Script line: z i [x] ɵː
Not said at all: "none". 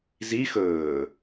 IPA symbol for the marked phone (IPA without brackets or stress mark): x